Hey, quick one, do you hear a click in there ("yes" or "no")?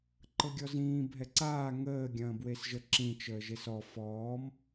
yes